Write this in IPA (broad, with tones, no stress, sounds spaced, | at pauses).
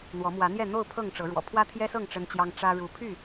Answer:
n̪ w ɔ˨˦ m w ä˨˦ n̪ j ɛ˥˨ n̪ o˥˨ ʊ̯ pʰ ɤ˥˨ ŋ ʈ͡ʂ ɤ˨˦ ɻ w ɔ̰˨˩ pʰ w ä˦ t̪ʰ j ɛ˦ s ɤ˥˨ ŋ ʈ͡ʂ ə˦ n t͡ɕ j ɑ˦ ŋ ʈ͡ʂ ä˦ ɻ u˨˦ pʰ y˥˨